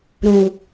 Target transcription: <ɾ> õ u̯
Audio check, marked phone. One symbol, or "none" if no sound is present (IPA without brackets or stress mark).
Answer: ɾ